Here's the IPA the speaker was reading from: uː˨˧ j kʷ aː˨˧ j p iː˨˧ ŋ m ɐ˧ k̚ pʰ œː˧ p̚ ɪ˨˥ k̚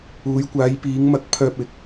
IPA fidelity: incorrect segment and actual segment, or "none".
none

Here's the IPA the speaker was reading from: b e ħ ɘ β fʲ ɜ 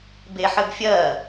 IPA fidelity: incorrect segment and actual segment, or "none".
β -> b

